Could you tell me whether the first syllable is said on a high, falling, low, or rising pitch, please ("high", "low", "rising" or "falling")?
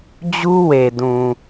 high